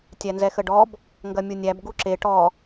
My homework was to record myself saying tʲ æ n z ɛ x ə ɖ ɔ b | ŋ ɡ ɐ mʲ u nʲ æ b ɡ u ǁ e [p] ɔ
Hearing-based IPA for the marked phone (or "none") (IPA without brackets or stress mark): ʈ